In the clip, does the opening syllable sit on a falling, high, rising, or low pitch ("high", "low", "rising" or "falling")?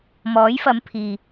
rising